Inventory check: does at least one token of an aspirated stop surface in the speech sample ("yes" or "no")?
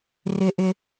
no